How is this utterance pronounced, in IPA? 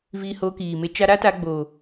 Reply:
v iː˧ h oː˧ k iː˨ m e˧ t͡ʃ a˧ ɾ a˦ t a˧ ɡ͡b o˨

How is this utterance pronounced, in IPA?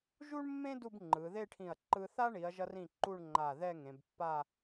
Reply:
ʒ u˥ ɳ mː ẽ˥ d u˥˧ b ŋ͡ǃ ɯ˩˧ ð e˥˧ ʈʰ ĩ˧˩ ɐ̯ ǃ ɯ˧ θ a˥ ɳ i˩˧ ɐ̯ ʒ ʌ˧ r ĩ˧˩ ǃ u˥˧ ɳ ŋ͡ǃ a˧˩ ð ɛ˥˧ ŋ ẽ˩˧ b pː a˥˧

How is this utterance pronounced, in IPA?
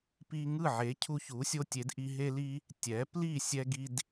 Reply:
p i˧ ŋ ɯ˥˩ ʕ e˩˥ cʰ u˧ ç u˩˥ sʲ o˧ tʲ e˩˥ d ʔ i˧ ɦ e˧ l i˧ | tʲ ɛ˩˥ p l i˥˩ sʲ ɛ˧ ɡ i˧ d

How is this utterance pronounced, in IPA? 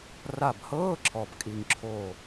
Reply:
r a˧˩ b h ɤː˧˥˧ ǁʰ ɔ˧˩ b kʼ i˧˩ ŋ ǁʰ oː˧˩

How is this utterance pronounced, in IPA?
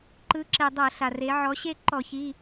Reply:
ǃ ɯ˩˧ ǁ e˩ dˤ ɤ˧˩˧ ɬ a˩ r e˩˧ ʕ ɔ˩˧ ɕ e˥˨ ǃ ɔ˧˩˧ ç i˩˧˩

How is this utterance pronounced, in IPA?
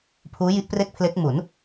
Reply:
pʰ uː˦˥ j i˦˥ ʔ p r e˥˩ k̚ pʰ l e˦˥ k̚ m u˩˦ n

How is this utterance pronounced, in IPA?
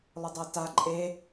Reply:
lˠ ʊ dˤ ɜ t a ǃʼ e

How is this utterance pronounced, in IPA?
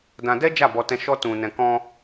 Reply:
d ã˧ d ɛ˦ d͡ʒ a˦˨ b ɔ˧ t ɛ̃˧ ʃ ɔ˦ t ũ˧ n ɛ̃˧ k ɔ̃˧

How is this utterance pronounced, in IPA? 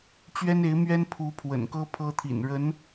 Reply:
t͡ɕ ɥ ɛ˥ n e˧˥ ɪ̯ m ɥ ɛ˥ n pʰ u˧˥ pʰ w ə̰˨˩ n k ɤ˥ pʰ ɤ˥ t̪ʰ ḭ˨˩ n ɻ ə˧˥ n

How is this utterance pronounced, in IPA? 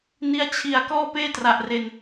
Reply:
n i˦˥ a̯ t͡ɕʰ i˨˩ a̯ k ɔː˥˩ p eː˥˩ t r a˨˩ ʔ r e˧ n

